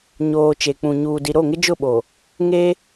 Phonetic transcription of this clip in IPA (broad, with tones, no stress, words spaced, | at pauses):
ɲoː˨ t͡ʃe˨k͡pũ˨ ɲuː˨di˨ ɾo˦˨ŋɪ˦d͡ʒʊ˦˨ɓo˨ | ŋe˦